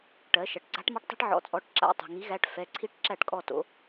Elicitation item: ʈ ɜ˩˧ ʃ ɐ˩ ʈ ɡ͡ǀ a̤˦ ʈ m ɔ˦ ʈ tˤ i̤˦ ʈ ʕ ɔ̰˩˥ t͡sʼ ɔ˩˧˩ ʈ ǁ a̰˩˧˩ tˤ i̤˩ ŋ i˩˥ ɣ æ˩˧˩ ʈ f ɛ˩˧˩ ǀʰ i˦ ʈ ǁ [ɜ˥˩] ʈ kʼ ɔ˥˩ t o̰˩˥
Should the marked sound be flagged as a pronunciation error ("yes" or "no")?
yes